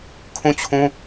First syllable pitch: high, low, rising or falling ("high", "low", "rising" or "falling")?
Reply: falling